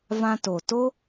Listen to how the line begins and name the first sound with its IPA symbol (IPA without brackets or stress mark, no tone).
v